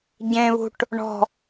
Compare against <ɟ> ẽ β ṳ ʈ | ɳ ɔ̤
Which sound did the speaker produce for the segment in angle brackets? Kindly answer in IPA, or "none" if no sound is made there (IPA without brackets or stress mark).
ɟ